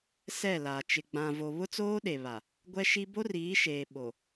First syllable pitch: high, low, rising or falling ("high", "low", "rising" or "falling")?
falling